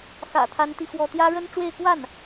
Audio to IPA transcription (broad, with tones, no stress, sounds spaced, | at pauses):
x ä̰˨˩ t̪ʰ a˥ n t̪ i˥˧ x w ɔ˥˩ t̪ j ä˥ ɻ ə˥ n ʈ͡ʂ w e˥˧ ɪ̯ k w a˥˩ n